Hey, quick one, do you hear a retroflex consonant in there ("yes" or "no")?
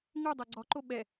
no